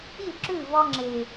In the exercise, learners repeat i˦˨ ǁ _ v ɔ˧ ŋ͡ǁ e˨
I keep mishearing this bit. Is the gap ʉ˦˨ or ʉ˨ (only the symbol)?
ʉ˦˨